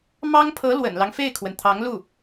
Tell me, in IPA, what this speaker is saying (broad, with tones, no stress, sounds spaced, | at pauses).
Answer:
m ɑ˥ ŋ pʰ ɤ˧˥ l w ə̰˨˩ n l ɑ˦ ŋ f e˥˩ ɪ̯ kʰ w ə˩ n t̪ʰ ɑ˧˥ ŋ l u˥˩